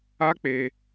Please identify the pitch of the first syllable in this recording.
high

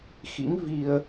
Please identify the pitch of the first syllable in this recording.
rising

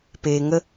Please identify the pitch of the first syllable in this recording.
low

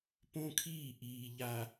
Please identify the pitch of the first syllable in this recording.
high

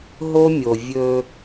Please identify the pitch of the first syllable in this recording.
high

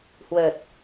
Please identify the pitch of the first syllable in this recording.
low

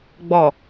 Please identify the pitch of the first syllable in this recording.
low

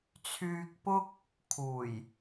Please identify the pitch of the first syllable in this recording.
low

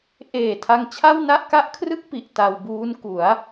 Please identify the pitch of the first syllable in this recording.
low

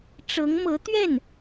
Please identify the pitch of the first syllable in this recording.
rising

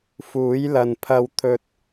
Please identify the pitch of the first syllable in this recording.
rising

